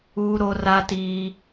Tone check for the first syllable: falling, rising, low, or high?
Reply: high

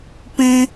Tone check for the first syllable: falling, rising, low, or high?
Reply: high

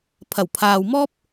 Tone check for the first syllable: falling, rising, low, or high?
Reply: low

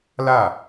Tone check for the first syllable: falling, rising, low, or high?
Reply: falling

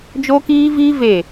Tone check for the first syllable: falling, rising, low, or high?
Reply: high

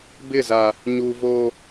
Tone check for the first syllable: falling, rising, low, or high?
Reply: falling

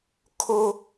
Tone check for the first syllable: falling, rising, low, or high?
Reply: high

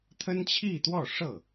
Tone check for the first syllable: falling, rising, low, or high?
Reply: high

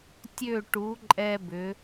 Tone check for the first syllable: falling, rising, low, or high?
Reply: falling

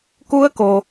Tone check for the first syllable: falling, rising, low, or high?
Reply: rising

